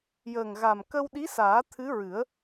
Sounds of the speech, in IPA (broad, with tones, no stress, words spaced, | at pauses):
jəː˨˩ŋɣa˨˩m kə˧wɗi˧˥saː˨˩˦ t̪ʰɨ˧˥ɹɨ˨˩˦ə̯